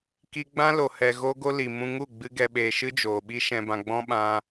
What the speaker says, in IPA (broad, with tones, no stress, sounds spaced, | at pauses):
k i˧ ɡ͡b ã˦ l o˨ h ɛ˨ ɣ o˦ ɡ o˦ l i˨ m ũ˧ ŋ u˦˨ ɡ͡b ɨ˧ ɡ ɛ˨ ɓ eː˨ ʃ ɨ˦ d͡ʒ oː˨ ɓ i˧ ʃ ɛ̃˨ b ã˨ ɡ͡b ɔ̃˦ ɓ ã˧